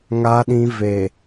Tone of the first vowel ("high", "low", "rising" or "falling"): low